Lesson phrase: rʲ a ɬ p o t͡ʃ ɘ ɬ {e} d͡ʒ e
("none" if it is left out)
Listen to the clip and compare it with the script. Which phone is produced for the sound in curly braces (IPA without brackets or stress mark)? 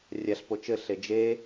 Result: e